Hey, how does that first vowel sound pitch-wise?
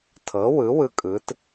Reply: rising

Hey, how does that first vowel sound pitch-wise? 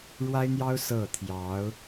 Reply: high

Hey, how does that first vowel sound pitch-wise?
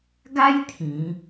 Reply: high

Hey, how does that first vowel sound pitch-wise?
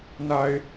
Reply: low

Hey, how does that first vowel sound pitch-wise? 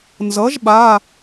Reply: rising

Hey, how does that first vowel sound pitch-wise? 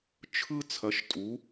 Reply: high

